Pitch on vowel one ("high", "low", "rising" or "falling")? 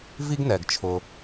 high